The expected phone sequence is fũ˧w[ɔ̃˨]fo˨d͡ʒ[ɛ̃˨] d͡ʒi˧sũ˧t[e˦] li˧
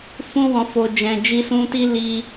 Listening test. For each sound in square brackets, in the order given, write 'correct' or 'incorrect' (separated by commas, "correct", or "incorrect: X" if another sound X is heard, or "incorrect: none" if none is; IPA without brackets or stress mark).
correct, correct, incorrect: i˦